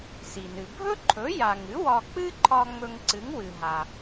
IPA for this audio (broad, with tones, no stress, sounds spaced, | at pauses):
s i˩ n ɨ˩ bʱ ɵ˥ ǃʰ ɵ˩˥ j a˩ ŋ ɨ˩˥ w ɒ˧ k͡p ɨ˥ ǃʰ ɒ˧ ŋ͡m ɵ˧ ŋ ǀ ɨ˩˥ ŋ w ɨ˩ ɦ a˩